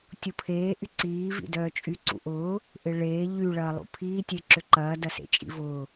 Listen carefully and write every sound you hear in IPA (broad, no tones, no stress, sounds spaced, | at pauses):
tʲ u pʰ eː ʔ y ǀ iː v ḭ d œː t͡ʃʼ y ǀ ṵ ʔ ʊː | ʔ ɪ ɭ eː ʎ y ɭ ɐː lˠ ṵ pʰ iː tʲ e ǁ ʏ ǃ ɐː d ɐ s ḛ t͡ʃʼ ḭ v ʊː